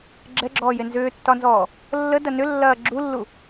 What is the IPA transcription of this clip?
ɡ͡ǁɛɡ͡ǁɔːje nzʏːtːɒnzɔː | lːədɐ nʏlːɐː ɡ͡ǁulːu

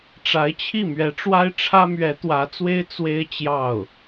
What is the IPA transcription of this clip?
ʈ͡ʂa˧˥ɪ̯t͡ɕʰi˥˩ mɥɛ˧˥ʈ͡ʂwa˥ɪ̯ʈ͡ʂʰä˥mɥɛ˧˥ t̪wä˧˥t͡swe˥ɪ̯ t͡swe˥ɪ̯ t͡ɕjɑ˥˩ʊ̯

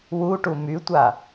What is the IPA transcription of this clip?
wuʈu mytʷa

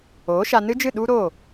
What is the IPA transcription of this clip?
oː˨˦ʃa˧nɨ˦d͡ʒɨ˦˨ ɗu˦ɾo˦˨

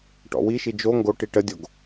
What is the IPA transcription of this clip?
ʈɔ̰wiʃi d͡ʒo ŋɡoʈi ʈədʲoɡ

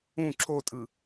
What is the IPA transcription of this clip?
ũ ǁotʼɯ

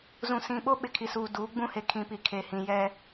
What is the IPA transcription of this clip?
zũ˨sĩ˨ɓo˦ ɓɪ˨kʰi˨suː˨ duː˨˦ɡ͡bũ˦he˨ kʰĩ˨pi˨ kʰe˨hĩ˨jɛ˦

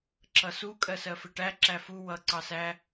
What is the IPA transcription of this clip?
ǁʌsu kʼɜsɜfɪʈæ ǁæfu wʌ ǀɑsæ

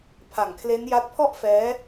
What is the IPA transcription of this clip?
pʰa˨˩ŋkʰle˦˥n ja˦˥t̚pʰɔ˥˩ʔfɛː˦˥

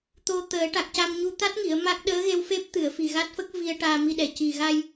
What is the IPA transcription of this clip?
t̪o˧t̪əː˨˩˦ ʈa˨˩k̚ca˧mɲu˧ t̪a˦˥t̚ŋi˨˩˨ə̯ ma˦˥k̚ ɗəː˧˥ɣe˧wfe˦˥p̚t̪ɨ˨˩˨ə̯ fi˨˩ɣa˦˥t̚fə˦˥k̚ vi˧ə̯ʈaː˧mi˧ɗɛ˨˩ ci˨˩ɣa˧j

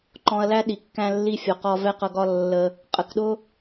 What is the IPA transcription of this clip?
ǃɔ̃˧ɐ̯læ˦ɗi˨ kːæ̃˦lːi˦fʲɒ˧qɒ˦ vɛ˦qʌ˧ɡɒ˦ lːə˧ | qʼə˨kɗʊ˦

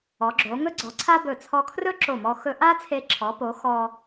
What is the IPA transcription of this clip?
ɔ˩˧ɡ͡ǁo˩˧ ŋɵ˥ɡ͡ǀɔ˩˧ ǀʰa˥bɵ˧˩ t͡sʰɔ˧kʰrɵ˥ǁo˧˩mɔ˧ xɵ˧ʔa˥t͡sʰe˧ ǁʰɔ˩˧po˩˧ xɔ˧

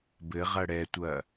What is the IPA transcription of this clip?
bɘʁɐ ɽɛtʷɐ

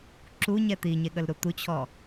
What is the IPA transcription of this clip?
ǁuɲɛ t̪iɲeɠəlɾu t̪ut͡ɕʰɔ

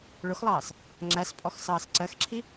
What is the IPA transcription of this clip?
ɭʊxlˠɑːs | ŋ͡ǁæspʼɔx sɑːsǀɜxǁʰi

